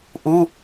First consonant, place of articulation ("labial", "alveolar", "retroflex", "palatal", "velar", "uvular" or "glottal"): glottal